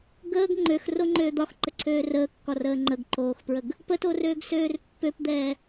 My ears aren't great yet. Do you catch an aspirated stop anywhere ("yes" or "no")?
yes